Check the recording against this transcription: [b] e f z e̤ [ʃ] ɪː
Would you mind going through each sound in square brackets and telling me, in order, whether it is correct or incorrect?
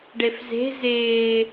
incorrect: ɖ, incorrect: z

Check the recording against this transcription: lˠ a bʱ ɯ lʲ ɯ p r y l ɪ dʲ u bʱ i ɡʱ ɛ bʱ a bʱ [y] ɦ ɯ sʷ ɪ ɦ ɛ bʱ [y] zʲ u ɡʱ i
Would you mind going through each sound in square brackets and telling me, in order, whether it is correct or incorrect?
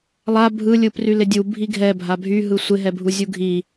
correct, incorrect: u

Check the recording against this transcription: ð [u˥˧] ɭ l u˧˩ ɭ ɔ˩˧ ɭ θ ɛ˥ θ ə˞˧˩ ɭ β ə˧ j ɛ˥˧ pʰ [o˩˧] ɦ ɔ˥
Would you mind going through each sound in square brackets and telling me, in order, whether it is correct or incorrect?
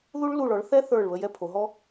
incorrect: u˥, correct

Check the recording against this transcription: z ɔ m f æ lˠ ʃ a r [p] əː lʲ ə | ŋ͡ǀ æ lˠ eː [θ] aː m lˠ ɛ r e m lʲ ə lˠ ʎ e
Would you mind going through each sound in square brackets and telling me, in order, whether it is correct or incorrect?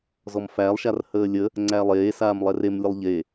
incorrect: h, incorrect: s

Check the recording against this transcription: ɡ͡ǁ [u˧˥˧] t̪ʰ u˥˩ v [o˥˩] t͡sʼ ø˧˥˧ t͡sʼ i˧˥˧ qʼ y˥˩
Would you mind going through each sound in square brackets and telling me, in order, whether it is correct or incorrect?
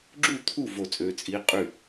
incorrect: u˥˩, correct

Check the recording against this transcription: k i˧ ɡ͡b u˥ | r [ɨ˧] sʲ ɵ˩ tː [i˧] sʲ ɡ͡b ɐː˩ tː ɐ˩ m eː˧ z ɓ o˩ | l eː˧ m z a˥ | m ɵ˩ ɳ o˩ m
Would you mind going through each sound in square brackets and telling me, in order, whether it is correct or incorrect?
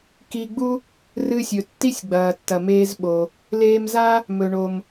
correct, incorrect: i˥

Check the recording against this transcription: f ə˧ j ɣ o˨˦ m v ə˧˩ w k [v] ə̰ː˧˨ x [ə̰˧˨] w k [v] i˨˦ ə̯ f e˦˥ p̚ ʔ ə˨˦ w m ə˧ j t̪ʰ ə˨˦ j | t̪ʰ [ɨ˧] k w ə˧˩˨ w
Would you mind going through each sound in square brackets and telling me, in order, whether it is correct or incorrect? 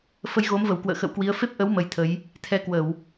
incorrect: w, correct, incorrect: w, incorrect: ɛ˧

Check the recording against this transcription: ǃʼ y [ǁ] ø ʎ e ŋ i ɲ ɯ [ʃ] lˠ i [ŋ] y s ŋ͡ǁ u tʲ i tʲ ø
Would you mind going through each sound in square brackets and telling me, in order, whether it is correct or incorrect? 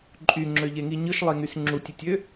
incorrect: ŋ͡ǁ, correct, correct

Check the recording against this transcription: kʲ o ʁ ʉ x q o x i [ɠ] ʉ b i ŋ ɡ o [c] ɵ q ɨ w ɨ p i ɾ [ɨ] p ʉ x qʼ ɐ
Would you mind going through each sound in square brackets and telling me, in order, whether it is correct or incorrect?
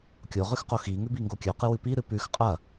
incorrect: ŋ, incorrect: kʲ, correct

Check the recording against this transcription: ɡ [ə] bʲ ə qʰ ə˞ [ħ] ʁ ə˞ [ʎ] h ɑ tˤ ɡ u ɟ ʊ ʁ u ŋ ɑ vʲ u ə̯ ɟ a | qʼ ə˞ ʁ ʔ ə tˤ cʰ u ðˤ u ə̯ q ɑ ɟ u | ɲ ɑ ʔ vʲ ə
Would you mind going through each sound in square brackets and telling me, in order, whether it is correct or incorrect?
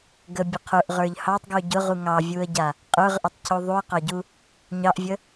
correct, incorrect: ʔ, correct

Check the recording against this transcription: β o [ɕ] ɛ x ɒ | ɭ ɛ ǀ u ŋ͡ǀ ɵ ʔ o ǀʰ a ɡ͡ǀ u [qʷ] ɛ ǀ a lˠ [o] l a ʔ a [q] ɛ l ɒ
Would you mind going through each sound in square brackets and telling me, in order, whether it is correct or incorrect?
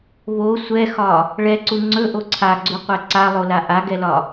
incorrect: sʷ, correct, correct, incorrect: ɡ

